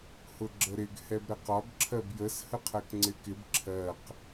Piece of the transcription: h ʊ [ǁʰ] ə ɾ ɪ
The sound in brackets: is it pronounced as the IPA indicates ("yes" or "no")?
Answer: no